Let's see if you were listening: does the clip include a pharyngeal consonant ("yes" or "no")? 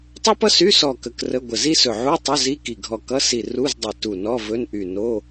yes